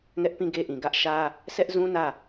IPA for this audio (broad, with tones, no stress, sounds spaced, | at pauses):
ŋ ɛ˦ ʔ p ĩ˦˨ ɡ e˦ ʔ ĩ˨ ɡ ä˦ ʔ ʃ ä˦ | s ɛ˦ ʔ z ũ˦ n ä˦˨